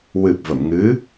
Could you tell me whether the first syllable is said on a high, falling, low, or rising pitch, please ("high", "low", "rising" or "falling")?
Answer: low